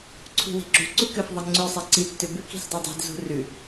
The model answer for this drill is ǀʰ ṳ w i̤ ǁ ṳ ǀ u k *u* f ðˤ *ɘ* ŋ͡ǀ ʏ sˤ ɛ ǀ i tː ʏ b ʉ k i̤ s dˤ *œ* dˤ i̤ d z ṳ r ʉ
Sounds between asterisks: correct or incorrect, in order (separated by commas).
incorrect, correct, correct